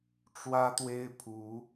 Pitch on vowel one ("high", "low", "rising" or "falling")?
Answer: high